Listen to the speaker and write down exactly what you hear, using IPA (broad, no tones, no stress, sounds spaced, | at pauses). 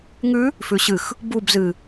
ŋ ʉ | f ʉ ɕ ɨ x | b u b z ɨ